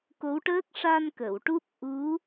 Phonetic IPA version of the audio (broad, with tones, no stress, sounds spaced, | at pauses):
k o˧˥ w ʈ əː˦˥ k̚ ʂ a˧ n k ə˨˩˨ w ʈ u˦˥ p̚ ʔ u˧˥